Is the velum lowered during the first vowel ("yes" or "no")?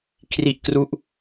no